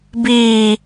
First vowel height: high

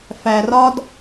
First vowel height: low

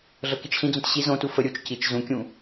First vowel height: mid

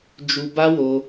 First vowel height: high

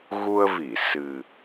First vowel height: high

